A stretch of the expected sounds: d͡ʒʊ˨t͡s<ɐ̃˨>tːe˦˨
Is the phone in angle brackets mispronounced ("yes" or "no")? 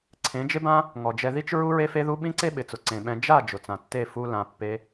yes